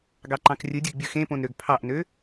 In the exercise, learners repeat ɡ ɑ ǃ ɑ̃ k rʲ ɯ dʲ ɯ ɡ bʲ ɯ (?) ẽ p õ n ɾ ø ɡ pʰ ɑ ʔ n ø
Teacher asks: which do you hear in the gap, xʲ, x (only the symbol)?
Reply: x